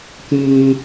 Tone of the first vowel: high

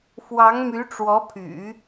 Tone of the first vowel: rising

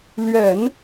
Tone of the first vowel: low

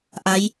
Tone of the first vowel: rising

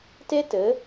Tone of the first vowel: high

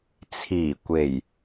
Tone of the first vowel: low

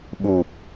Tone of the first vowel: low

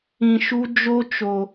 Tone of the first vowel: low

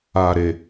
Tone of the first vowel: low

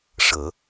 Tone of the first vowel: low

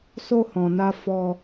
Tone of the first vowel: high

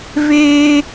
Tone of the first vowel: high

